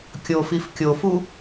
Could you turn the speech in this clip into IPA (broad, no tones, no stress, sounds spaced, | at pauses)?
kʲ o f i f kʲ o f u